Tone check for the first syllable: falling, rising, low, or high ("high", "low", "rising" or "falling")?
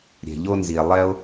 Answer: low